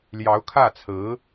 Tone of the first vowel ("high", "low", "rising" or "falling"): rising